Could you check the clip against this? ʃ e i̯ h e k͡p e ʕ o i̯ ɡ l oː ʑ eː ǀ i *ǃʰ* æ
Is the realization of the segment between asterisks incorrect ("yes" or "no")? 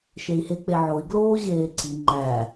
yes